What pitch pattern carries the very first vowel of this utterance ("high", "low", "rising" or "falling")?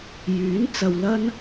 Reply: rising